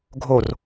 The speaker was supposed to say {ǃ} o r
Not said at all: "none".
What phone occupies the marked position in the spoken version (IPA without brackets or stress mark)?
ɡʱ